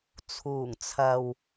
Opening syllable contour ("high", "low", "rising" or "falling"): low